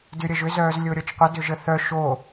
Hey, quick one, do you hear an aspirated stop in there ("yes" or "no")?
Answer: no